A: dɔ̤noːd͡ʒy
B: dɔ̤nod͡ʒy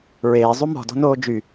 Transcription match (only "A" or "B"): A